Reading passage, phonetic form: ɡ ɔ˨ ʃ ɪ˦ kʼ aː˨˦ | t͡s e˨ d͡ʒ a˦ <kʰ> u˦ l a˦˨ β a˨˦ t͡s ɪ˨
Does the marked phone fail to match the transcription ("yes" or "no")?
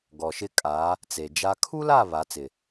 no